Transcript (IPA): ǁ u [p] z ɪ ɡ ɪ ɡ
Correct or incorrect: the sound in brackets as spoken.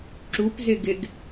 correct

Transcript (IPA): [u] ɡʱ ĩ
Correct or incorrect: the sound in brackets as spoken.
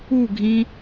correct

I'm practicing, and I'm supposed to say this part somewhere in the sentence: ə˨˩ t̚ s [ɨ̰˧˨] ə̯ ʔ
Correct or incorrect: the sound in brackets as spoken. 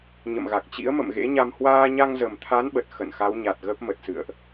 correct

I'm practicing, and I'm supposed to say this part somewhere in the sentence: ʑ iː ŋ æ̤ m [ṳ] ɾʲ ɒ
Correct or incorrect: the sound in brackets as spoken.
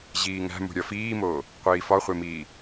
correct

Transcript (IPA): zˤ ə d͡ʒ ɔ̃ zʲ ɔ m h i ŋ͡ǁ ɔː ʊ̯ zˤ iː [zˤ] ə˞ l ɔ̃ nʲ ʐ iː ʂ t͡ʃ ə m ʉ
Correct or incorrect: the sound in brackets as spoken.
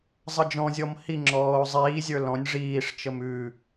incorrect: zʲ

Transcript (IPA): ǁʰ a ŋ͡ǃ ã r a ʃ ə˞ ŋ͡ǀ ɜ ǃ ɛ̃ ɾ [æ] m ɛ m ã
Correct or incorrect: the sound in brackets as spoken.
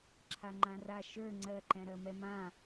incorrect: ɜ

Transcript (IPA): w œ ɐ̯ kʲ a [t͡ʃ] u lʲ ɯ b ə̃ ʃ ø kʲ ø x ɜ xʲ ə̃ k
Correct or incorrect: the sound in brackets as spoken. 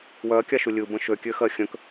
incorrect: ʃ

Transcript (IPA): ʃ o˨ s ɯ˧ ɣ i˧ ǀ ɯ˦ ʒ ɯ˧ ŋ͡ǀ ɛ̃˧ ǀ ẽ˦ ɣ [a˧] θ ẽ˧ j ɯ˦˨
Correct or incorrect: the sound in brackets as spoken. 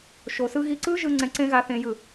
correct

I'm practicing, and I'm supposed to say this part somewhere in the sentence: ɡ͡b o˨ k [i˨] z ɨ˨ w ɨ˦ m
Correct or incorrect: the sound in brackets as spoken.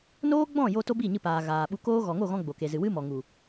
incorrect: e˨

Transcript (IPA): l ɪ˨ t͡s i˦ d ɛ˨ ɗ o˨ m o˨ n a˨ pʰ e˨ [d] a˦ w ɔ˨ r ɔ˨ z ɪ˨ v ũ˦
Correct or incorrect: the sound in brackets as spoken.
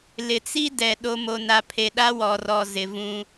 incorrect: ɗ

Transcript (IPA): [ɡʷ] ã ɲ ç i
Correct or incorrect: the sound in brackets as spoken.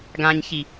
incorrect: ɡ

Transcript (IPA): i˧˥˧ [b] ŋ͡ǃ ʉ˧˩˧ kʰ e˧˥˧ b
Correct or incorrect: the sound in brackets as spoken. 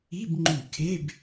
correct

